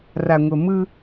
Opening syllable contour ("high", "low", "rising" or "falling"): low